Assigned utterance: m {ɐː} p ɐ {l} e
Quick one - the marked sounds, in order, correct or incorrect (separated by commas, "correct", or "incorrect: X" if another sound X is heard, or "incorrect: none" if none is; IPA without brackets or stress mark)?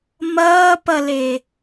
correct, correct